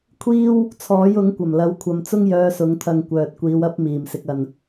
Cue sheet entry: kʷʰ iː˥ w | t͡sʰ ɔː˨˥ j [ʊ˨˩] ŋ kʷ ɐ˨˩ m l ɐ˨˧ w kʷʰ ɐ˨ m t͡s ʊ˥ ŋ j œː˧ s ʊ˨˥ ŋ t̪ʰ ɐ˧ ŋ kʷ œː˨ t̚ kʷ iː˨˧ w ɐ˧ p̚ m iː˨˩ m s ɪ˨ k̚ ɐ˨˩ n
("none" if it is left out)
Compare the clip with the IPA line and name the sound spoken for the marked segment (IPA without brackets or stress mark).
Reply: ʊ˨˥